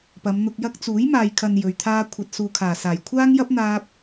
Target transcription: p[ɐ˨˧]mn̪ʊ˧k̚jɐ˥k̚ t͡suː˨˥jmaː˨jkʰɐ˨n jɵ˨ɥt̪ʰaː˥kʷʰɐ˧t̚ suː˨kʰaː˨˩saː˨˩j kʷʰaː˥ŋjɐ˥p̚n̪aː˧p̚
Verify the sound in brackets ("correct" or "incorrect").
correct